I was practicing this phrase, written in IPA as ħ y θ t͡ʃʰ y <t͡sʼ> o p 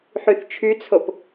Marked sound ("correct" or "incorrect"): incorrect